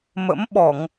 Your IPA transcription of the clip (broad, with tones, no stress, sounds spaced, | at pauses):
m ə̰˧˥ m ɓ ɔ˧˩˨ ŋ